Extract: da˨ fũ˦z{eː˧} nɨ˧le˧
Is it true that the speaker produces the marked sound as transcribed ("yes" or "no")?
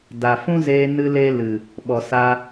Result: yes